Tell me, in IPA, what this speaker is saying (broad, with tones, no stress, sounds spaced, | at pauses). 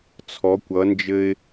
t͡sʰ ɔ˨˦ kʷ ʌ˨˦ n d͡ʒ ɘ˦ ɪ̯